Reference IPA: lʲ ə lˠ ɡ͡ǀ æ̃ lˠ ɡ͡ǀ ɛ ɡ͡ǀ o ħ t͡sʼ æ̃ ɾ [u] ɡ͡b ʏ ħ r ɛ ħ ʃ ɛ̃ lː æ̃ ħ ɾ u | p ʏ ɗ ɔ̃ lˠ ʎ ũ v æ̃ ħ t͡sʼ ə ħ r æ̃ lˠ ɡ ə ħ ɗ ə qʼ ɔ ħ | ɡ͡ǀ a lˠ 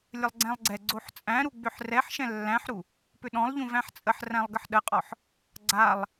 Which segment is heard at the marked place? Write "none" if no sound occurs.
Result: u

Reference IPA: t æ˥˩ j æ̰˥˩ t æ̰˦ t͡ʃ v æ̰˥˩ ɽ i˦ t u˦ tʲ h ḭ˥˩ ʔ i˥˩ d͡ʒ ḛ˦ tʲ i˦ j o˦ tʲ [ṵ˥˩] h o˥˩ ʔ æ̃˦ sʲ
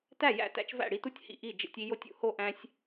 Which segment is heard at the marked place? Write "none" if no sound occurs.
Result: ṵ˥˩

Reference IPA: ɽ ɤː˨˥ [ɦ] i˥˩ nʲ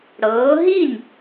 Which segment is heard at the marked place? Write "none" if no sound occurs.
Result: ɦ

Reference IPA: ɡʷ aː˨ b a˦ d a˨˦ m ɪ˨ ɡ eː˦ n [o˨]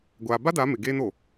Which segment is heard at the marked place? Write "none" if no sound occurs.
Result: o˨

